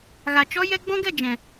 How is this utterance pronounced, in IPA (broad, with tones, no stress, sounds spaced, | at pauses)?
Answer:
ɣ a˨ t͡ʃ ɔ˦ j ɛ˦ ɡ͡b ɔ̃˦ ɡ ɛ˦˨ d͡ʒ ɛ̃˨